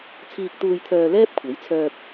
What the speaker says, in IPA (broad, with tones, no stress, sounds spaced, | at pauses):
t͡sʰ iː˨ k̚ t̪ uː˨ j t̪ʰ œː˨ l ɛː˥ p̚ kʷʰ e˨˥ j t͡sʰ œː˧ p̚